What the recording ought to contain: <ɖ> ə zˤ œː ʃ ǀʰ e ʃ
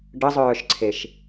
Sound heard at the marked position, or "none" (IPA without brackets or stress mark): ɖ